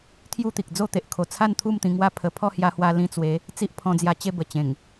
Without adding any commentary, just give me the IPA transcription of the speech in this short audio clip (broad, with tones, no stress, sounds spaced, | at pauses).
t̪ʰ j u˥˧ t̪ i˨ k̚ d͡z o˥˧ t̪ e˨ ʔ kʰ o˨˩ t͡sʰ a˥˧ n t̪ʰ u˥˧ m t̪ ĩ˧ ŋ w a˦ pʰ ə˧ pʰ ɔ˥˧ h j a˧ h w a˧ l ĩ˧ t͡s w e˨˦ | t͡s i˦ ʔ pʰ ɔ̃˧ d͡z j a˧ t͡ɕ e˥˧ b ə˨˩ t͡ɕ ẽ˨˩ ŋ